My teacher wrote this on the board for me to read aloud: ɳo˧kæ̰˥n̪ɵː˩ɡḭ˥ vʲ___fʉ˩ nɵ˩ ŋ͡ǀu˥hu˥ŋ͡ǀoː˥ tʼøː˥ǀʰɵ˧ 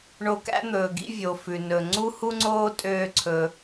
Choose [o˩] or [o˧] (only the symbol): o˩